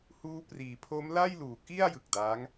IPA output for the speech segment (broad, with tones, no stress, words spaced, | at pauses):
huː˦˥priː˩˦ pʰo˦˥m la˥˩jluː˨˩ki˥˩a̯ jɯ˨˩k̚daː˦˥ŋ